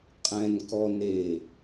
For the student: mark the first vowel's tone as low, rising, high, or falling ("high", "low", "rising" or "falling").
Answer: low